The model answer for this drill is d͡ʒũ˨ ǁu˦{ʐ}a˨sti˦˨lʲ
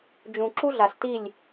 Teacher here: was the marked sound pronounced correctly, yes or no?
no